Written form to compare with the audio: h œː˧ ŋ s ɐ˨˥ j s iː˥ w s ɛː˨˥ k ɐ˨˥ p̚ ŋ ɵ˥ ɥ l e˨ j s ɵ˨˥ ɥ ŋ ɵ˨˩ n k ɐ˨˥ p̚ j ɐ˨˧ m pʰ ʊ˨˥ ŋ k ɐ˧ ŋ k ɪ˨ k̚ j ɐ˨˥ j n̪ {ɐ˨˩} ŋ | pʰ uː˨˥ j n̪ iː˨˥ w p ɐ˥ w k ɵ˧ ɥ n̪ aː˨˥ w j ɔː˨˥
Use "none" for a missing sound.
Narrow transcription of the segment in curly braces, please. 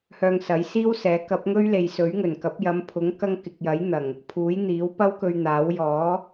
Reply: ɐ˨˩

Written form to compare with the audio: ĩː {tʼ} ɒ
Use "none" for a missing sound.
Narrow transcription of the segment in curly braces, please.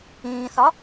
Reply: θ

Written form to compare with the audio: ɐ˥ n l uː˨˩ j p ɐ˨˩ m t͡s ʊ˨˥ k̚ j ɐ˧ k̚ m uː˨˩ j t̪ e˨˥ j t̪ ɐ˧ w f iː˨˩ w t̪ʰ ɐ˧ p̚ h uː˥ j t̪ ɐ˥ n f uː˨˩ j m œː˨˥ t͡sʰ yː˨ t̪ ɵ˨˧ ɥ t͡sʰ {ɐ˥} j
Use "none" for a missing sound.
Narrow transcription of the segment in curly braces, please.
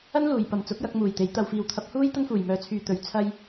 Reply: ɐ˥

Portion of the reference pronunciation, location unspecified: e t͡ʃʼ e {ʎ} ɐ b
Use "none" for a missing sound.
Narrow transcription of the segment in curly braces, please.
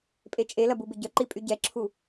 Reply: l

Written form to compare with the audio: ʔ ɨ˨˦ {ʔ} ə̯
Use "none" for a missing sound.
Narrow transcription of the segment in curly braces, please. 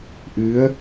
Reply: none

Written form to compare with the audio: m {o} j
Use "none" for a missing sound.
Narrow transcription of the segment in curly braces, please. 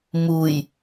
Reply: u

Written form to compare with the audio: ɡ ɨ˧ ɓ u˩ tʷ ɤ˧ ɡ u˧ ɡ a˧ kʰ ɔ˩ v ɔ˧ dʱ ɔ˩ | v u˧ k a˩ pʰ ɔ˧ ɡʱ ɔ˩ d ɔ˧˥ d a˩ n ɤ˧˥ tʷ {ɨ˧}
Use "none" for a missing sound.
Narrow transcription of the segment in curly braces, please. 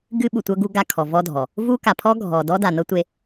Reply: e˧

